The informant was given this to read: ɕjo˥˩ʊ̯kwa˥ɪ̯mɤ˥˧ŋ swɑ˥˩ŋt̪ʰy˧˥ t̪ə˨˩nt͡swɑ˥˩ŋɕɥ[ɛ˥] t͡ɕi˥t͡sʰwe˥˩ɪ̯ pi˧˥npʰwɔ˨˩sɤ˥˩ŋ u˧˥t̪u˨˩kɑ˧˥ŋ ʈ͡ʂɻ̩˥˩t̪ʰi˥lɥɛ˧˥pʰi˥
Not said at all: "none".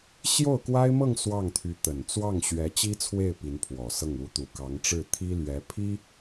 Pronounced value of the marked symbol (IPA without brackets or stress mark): ɛ˧˥